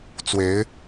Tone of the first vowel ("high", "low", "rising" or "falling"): rising